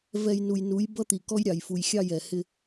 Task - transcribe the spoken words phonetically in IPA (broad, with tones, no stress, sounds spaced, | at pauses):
v ɛ˨ j n u˨ j n u˨˦ j b ʌ˦ t̪ i˨ k ɔ˦ j ɾʲ ɑ˨ j f u˨ j xʲ ɑ˦˨ j ɛ˨ h ɪ˦